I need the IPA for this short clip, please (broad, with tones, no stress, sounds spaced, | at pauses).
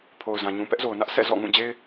pʰ o˨ ʊ̯ z ã˨ ɲ ũ˨ p ɛ˦ ʔ z o˨ ʊ̯ n ä˦ ʔ s ɛ̰˦˨ z ɔ̰˦˨ ŋ ũ˦˨ d͡ʑ e˦ ɪ̯